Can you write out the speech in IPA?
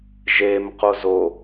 ʒ e m q o z o

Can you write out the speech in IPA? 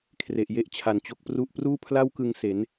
kʰ r e˨˩ ʔ j e˥˩ ʔ t͡ɕʰ a˨˩ n t͡ɕ o˦˥ k̚ p r u˥˩ ʔ p r uː˥˩ pʰ l a˥˩ w k ɯ˧ ŋ s e˩˦ n

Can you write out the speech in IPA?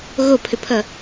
ɣ o pʰ ʏ pʰ ʌ

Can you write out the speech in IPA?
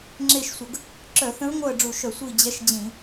ŋ͡ǁ e˦˨ ʃ sʷ ə˧˩˧ ɡ | ǁ œ˧˩˧ θ ə̃˧˥ ɹ ŋʷ œ˦˨ ə̯ ɖ͡ʐ u˧˩˧ ʃ œ˧˩˧ sʷ i˦˨ d͡ʑ ɛ˧˥ ʃ d͡ʑ ĩ˧˩˧

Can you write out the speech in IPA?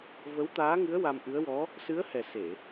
v ə˧˥ w t̪ aː˧˥ ŋ ɨ˧˥ ə̯ w a˧ m ʔ ɨ˧˥ ə̯ w ɔ˧˥ | s ɨ˧˥ ə̯ h ɛ˨˩ s e˨˩˨

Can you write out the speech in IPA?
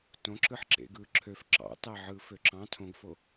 t õ ǁ ɯ ħ ǁ ḛ ɡ ɯː ǁʰ ø f ǁ ɑ̰ t ɑ ʕ ɯː f ø ǁ ɑ̃ tʰ õ ɡ f o

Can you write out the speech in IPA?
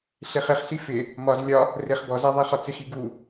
ɬ e χ ɪ χ ɬ i f ɪ | m ɒ z lʲ ɒ | r ɪ χ b ɔ z a ðˤ i χ ɒ t͡s ɪ x i ɡ u

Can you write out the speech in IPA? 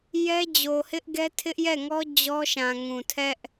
j ɛ˦ d͡ʑ o˨ h ɪ˦ ʔ ɡ ɛ˦ tʰ ɪ˦ ʔ j ɛ˦˨ ŋ ɔ˦ d͡ʑ ɔ˦ ʃ ã˨ ŋ ũ˨ tʰ ɛ˦ ʔ

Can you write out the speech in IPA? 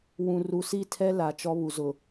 w ũ˨ r u˨ s i˦˨ tʰ ɛ˦ l a˨ t͡ʃ ɔ˦ β u˨ z ʊ˨

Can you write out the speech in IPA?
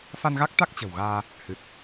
f a˧ n ɣ a˦˥ k̚ t̪ a˦˥ k̚ t͡ɕ ə̤˨˩ w ɣ aː˧ | h ɨ˨˩ t̚

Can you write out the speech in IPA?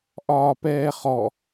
ʔ ɒː p ɛː χ ɔ

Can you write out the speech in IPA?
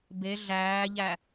b e ɮ æː ʎ æ

